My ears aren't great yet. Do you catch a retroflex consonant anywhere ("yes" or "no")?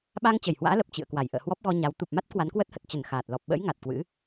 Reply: no